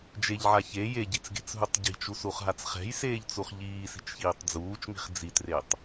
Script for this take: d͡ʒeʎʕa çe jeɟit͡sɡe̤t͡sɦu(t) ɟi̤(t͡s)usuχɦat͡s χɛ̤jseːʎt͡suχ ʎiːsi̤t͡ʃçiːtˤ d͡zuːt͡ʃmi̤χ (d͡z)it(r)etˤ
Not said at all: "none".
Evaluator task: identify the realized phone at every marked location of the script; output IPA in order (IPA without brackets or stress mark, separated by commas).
tˤ, t͡ʃ, d͡z, r